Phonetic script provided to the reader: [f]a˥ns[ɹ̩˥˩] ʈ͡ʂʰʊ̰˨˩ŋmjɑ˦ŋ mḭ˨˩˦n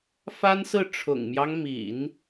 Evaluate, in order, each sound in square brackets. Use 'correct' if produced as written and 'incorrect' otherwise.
correct, correct

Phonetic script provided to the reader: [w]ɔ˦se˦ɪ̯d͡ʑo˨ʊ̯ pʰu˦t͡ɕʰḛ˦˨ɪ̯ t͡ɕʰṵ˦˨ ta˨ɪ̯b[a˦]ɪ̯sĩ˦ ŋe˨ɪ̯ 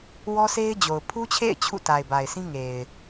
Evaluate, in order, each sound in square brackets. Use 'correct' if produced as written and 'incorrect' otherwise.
correct, incorrect: a˨

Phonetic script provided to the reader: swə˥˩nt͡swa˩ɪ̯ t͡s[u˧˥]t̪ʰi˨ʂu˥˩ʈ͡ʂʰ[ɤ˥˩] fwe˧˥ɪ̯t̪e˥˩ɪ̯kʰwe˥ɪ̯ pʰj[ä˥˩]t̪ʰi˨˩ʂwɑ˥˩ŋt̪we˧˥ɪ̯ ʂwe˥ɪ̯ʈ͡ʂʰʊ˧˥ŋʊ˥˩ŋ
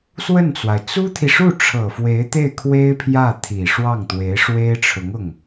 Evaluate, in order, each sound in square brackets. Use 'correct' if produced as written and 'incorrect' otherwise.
incorrect: u˥, incorrect: ɤ˨˩, correct

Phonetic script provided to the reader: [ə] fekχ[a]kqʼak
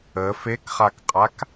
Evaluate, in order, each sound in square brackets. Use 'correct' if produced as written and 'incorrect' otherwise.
correct, correct

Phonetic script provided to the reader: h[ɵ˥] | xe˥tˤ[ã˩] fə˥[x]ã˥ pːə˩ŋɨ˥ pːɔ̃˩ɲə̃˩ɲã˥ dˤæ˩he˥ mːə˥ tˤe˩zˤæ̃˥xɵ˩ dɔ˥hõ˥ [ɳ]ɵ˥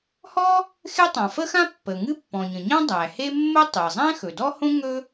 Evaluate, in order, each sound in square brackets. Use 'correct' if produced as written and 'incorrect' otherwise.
incorrect: ɔ˥, correct, correct, incorrect: ŋ

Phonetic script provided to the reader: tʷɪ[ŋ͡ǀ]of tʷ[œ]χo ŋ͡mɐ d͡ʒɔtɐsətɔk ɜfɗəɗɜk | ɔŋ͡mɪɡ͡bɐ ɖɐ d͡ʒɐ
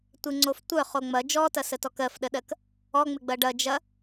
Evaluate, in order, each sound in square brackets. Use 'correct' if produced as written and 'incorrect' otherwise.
correct, correct

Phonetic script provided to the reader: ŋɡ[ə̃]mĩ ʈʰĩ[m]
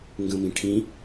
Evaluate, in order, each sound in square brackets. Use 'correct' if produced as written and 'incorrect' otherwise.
correct, incorrect: none

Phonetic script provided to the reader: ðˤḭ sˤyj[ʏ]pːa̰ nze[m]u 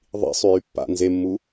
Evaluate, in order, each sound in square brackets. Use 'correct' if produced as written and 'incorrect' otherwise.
incorrect: y, incorrect: mː

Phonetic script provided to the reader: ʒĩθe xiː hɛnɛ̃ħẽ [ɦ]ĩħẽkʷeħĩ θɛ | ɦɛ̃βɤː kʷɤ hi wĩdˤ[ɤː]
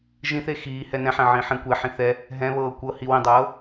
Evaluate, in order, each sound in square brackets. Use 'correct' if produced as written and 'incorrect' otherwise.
incorrect: ʕ, correct

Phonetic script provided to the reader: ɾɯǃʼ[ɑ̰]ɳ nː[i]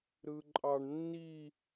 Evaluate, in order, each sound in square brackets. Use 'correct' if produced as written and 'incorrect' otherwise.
incorrect: ɑ, correct

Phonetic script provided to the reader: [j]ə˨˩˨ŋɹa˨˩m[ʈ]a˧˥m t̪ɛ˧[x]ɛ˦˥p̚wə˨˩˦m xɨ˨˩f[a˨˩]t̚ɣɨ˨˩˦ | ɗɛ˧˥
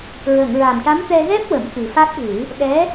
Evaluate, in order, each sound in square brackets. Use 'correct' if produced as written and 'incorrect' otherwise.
incorrect: ɹ, correct, incorrect: ɣ, incorrect: a˦˥

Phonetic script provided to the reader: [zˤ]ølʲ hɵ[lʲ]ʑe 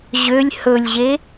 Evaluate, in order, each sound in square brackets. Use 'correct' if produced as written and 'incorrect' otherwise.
incorrect: ʑ, correct

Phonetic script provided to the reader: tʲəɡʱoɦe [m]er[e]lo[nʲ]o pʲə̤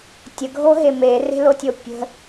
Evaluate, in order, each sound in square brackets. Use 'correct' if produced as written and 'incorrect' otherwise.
correct, incorrect: e̤, incorrect: tʲ

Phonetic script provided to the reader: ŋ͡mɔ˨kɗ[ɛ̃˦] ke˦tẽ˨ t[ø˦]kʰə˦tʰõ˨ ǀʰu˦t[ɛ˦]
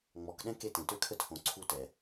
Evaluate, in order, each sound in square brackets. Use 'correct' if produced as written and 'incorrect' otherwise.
correct, correct, incorrect: ɛ˨

